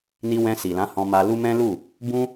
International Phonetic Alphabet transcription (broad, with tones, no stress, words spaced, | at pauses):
ni˧wɛ̃˧si˨lã˨˦ hɔ̃˧ma˧lu˦ mɛ̃˦lu˦˨ | bũ˦